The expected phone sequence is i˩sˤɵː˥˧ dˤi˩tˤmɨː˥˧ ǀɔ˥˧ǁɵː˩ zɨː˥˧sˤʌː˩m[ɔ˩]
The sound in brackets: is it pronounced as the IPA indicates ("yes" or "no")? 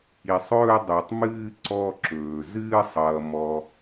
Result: yes